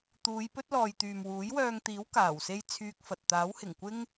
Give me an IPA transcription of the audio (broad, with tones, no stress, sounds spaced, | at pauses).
t̪ uː˨˧ j p ɵ˥ t̚ l ɔː˨ j t̪ yː˨ m w uː˨˥ j w œː˧ ŋ t̪ iː˨˥ w k aː˨˩ w s e˥ j t͡sʰ yː˧ k̚ f ɐ˨ t̚ t̪ aː˨˥ w h ɪ˨˩ ŋ kʷ ɪ˥ ŋ